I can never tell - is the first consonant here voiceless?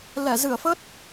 no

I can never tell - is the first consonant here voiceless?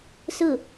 yes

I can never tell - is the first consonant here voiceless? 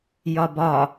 no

